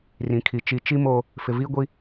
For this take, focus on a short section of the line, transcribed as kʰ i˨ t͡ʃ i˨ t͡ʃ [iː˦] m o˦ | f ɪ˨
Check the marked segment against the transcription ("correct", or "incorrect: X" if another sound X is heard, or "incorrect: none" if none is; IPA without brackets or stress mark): incorrect: i˦